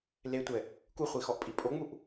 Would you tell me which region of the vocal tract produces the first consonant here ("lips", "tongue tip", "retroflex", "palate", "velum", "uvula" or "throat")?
tongue tip